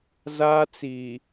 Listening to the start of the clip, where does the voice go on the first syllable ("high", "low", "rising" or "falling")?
high